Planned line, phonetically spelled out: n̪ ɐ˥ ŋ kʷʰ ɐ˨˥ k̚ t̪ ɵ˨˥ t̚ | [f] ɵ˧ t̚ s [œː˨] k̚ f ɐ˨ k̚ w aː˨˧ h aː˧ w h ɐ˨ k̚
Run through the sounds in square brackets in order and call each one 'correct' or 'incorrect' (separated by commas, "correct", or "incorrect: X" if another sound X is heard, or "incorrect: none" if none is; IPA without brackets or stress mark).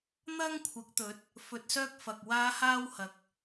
correct, incorrect: œː˥